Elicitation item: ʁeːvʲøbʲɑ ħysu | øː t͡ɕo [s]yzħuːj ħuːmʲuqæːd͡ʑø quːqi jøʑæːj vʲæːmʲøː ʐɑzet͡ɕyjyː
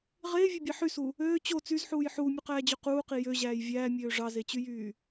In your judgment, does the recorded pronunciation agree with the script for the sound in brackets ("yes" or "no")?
no